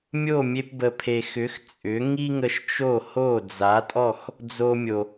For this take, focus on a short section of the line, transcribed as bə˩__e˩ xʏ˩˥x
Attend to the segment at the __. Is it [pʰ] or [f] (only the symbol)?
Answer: pʰ